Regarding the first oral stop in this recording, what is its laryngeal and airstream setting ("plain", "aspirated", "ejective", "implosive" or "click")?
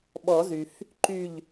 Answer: implosive